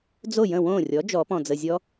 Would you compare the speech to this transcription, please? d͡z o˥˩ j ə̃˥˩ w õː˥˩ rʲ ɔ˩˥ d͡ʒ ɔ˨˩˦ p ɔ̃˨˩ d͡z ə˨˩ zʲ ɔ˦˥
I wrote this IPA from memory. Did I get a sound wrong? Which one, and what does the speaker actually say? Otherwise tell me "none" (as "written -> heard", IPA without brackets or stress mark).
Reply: none